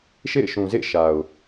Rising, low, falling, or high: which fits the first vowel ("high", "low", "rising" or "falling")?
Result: falling